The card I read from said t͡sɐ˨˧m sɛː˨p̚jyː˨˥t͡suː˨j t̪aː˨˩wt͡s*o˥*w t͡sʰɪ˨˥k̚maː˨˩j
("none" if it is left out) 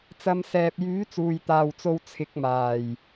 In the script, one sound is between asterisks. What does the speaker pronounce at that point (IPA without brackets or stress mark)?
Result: o˨